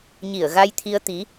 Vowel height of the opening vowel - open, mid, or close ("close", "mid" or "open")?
close